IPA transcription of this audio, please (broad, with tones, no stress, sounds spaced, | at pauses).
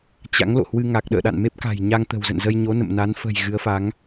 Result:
t͡ɕ a̰˧˥ ŋ l o̰˧˨ h w ɨ˧ ŋ a˨˩ k̚ ɗ ə̰ː˧˨ ɗ a̰˧˨ n m e˦˥ p̚ k a̤˨˩ j ɲ a˧ ŋ t̪ ə̤˨˩ w z ə̰˧˨ n z ə˧ j ɲ o˨˦ n ə̰˧˨ m n a˨˦ n f ə̤˨˩ j ɣ ɨ˨˦ ə̯ f a˨˦ ŋ